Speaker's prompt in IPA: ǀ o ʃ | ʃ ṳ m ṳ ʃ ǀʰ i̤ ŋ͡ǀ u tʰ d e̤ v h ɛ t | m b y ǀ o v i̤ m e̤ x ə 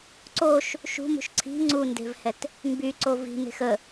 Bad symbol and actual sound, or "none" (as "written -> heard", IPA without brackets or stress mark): tʰ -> n